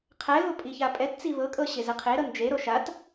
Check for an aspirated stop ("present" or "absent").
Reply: present